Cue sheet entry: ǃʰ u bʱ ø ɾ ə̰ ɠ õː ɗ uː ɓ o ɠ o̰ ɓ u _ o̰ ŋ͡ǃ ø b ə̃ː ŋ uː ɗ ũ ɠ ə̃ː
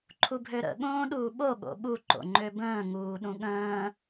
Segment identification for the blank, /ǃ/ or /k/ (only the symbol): ǃ